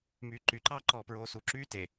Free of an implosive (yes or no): yes